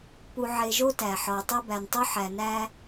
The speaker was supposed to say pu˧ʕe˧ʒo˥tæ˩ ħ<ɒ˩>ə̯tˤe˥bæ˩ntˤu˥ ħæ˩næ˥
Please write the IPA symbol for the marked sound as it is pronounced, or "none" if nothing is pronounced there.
ɒ˩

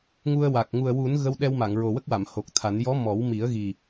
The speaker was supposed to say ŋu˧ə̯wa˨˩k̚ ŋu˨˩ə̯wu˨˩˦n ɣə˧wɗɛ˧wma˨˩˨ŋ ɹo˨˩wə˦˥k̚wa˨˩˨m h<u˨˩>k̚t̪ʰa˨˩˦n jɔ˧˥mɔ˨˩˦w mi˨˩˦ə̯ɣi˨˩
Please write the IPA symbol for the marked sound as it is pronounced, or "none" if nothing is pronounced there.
o˨˩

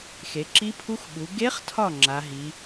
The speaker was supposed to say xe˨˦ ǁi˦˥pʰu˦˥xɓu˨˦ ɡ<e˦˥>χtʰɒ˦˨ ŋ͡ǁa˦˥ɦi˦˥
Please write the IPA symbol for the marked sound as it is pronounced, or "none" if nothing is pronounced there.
e˦˥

